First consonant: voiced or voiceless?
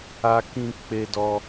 voiceless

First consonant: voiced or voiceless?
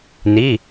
voiced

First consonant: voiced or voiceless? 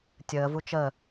voiceless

